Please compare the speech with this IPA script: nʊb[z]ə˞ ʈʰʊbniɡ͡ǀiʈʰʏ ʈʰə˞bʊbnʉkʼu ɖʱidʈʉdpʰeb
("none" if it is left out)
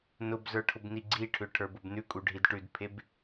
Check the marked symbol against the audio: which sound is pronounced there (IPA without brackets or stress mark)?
z